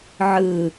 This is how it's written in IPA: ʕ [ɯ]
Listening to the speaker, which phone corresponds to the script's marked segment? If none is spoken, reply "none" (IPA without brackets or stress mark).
ɯ